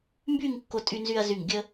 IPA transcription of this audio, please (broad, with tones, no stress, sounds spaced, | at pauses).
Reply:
m b y˥˧ ŋ kː o˧ tʼ y˧ n z y˧ ɐ̯ z y˧˩ ŋ ɡʲ ə˧